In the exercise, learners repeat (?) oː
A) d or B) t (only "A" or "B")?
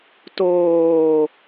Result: B